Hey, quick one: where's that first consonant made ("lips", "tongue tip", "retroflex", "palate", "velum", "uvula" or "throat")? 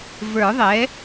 lips